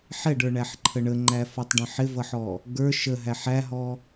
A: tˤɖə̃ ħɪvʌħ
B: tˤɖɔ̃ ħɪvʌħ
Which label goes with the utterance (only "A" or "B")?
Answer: A